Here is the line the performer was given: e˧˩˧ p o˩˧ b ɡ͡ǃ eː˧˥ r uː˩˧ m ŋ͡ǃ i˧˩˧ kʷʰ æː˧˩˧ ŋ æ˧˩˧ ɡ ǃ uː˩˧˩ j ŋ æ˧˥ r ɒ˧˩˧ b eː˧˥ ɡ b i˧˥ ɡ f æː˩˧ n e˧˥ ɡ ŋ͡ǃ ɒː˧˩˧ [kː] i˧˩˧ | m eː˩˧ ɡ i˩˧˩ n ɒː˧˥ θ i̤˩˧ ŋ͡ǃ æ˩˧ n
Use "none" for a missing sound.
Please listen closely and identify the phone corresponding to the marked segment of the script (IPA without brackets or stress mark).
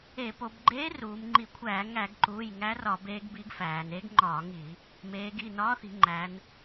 ŋ